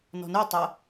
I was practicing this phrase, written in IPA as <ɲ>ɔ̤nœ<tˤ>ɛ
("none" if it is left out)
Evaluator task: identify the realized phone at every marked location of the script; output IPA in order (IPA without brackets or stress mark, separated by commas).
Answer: n, tˤ